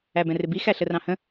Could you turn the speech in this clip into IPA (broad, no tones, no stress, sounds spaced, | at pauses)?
æ b ɛ̃ r ɪ b i x æ ɬ ə r ɑ̃ h ə̃